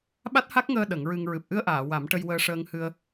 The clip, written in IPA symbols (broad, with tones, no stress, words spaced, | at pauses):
ɓa˦˥t̚ha˦˥k̚ŋəː˧ ɗə˨˩˦ŋɹɨ˧ŋ ɹɨ˨˩p̚ʔɨ˧ə̯ʔaː˨˩˨ wa˨˩˦m ʈə˧jwəː˧ ʂəː˧ŋhɨ˧ə̯